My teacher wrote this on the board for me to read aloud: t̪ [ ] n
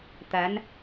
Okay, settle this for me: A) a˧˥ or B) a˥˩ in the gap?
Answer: A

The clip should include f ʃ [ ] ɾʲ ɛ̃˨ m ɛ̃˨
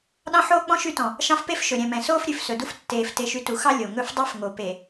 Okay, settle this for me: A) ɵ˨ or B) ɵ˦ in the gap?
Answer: A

